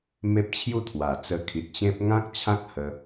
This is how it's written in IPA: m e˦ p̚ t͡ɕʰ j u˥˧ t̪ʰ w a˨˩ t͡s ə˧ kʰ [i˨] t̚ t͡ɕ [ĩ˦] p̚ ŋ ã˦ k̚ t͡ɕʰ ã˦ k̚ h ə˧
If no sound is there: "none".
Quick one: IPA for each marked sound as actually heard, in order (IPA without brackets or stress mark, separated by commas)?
i˨, ẽ˦